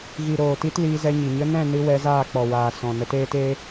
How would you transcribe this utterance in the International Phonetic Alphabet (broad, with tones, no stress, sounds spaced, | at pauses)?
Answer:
ɣ i˨ ɾ oː˨ t i˧ t l iː˧ z ɛ˧ ɲ i˨ ɲ ə˧ n ɛ̃˦˨ n ɨ˧ w ɛ˧ z aː˦˨ k͡p ɔ˨ w aː˨ s ɔ̃˨ n ə˧ t eː˦ t eː˦